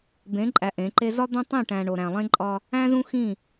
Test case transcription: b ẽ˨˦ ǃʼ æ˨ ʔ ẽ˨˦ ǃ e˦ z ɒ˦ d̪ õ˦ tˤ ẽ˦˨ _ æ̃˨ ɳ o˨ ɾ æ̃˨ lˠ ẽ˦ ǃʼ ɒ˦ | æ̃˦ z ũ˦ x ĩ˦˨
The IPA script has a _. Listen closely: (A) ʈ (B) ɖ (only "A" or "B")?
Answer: A